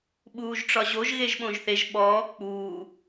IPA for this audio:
ɓ uː ʒ ʈ͡ʂ ɒ ʑ o ʒ ɣ e ʒ ɓ õ ʒ θ e ʒ ɓ ɔː k͡p uː

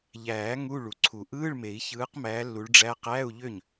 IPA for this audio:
ʎ æː˨˩˦ ŋ u˧˥˧ ɭ u˩ ǀʰ u˨˩˦ ʔ ɯː˧˥˧ ɭ m e˨˩˦ i̯ ç ɯː˨˦ q m æː˨˦ lː u˨˦ ɭ ɖ͡ʐ æ˧˥˧ q æː˧˥˧ u̯ ʎ ø˥˩ ɲ

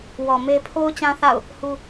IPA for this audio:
w ɔ˨ m e˦ pʰ o˦ ʊ̯ t͡ɕ ã˦ θ a̰˦˨ ʊ̯ | h u˦

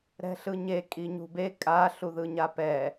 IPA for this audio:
ɾ ɛ̤ ɬ ɯ ɲ e kʼ i ɲ ṳ b e kʼ a ɬ u ð ɯ ɲ a p ɛ

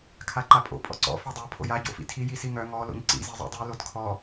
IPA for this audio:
kʰ a ǃ a pʼ o̰ pʼ ɔ̰ ǀ ɔ̰ f œ dˤ o pʰ o̰ j a ɟ o̰ f ḭ tʰ i j i s i ŋ œ ŋ ɔ l o̰ ɲ ǀ ḭ z i zˤ o̰ dˤ i l o d kʰ ɔ

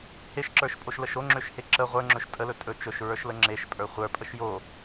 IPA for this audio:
h e ʃ ǁ ə˞ ʃ pʼ o ʃ l ə ʃ o ŋ͡ǁ ø ʃ h e ǁ ə ʁʷ ə˞ ŋ͡ǁ ɵ ʃ tʼ ə l ɵ tʼ ɵ t͡ʃ ɵ ʃ ɹ ə˞ ʃ l ə ŋ͡ǁ e ʃ pʼ ə˞ χʷ ə˞ pʼ ə ʃ j o

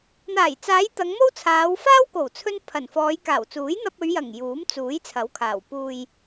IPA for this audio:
n̪ aː˨˩ j t͡s aː˨˧ j t̪ ɐ˨˧ ŋ m o˥ w t͡sʰ aː˨˧ w f aː˥ w k o˨˩ w t͡sʰ ɵ˧ n pʰ ɐ˨˩ n f ɔː˨˧ j k aː˨˩ w t͡s uː˨˥ j n̪ ɐ˧ p̚ ɵ˨˧ ɥ j ɐ˨˩ ŋ j uː˨˥ m t͡s uː˨˥ j t͡sʰ ɐ˨˥ w kʰ aː˨˩ w p uː˨ j

